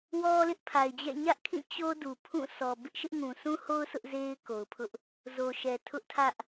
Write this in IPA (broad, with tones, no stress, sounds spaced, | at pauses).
w ɔ˦ l ɪ˦ ʔ pʰ a˨ ɪ̯ d͡ʑ ɛ̰˦˨ ɲ ä˦ ʔ kʰ ĩ˦˨ t͡ɕ o˦ d u˨ pʰ ũ˦˨ s ɔ˨ b ɪ˦ ʔ ʃ ɪ˦ ʔ ŋ ũ˨ s ũ˦ h o˦ ʊ̯ s ʊ˦ ʔ z e˦ ɪ̯ k o˨ ʊ̯ pʰ ʊ˦ ʔ | z o˨ ʃ ɛ˨ tʰ ʊ˦ ʔ tʰ ä˦ ʔ